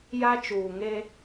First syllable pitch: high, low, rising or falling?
high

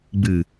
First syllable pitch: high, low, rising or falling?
low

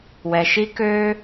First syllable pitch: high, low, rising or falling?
low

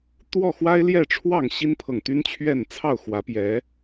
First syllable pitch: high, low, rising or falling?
falling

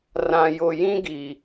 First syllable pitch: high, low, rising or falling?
low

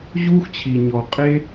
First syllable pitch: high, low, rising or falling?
high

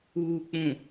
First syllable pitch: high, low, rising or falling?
low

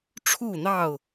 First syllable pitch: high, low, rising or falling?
falling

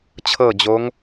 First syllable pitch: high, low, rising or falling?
falling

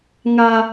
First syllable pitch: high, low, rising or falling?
low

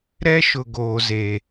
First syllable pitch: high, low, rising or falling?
high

